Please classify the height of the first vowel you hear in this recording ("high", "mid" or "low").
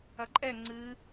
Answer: low